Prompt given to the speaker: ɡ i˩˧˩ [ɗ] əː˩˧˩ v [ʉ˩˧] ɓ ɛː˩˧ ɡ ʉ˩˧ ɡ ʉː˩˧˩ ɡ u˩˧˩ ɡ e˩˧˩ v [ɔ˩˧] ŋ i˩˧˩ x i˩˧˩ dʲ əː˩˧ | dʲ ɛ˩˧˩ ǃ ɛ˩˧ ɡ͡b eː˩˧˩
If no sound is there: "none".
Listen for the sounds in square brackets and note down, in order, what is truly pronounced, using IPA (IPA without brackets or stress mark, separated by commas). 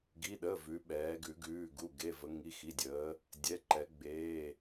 ɗ, ʉ˩˧, ə˩˧